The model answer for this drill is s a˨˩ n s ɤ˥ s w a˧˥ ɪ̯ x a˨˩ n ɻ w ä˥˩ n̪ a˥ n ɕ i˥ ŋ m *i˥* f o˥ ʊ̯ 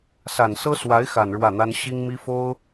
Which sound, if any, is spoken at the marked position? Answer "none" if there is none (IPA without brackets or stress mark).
i˥